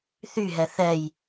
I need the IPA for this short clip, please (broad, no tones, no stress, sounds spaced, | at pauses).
θ y ɦ ɛ θ ɛ j